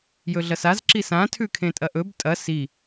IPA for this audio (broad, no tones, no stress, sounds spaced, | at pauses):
j ɵ ɮ ɐ s a z ǁ i s ã tʰ ʉ kʰ ẽ tʼ ɐ ʔ ɵ b tʼ ɐ s i